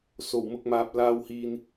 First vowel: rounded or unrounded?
rounded